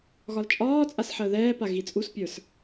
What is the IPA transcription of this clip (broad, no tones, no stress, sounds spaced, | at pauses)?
ɣ ɒ l t͡ʃʼ ɒː t͡sʼ a s ħ əː ð ɛː p a ɣ i t͡sʼ u s pʲ ə˞ s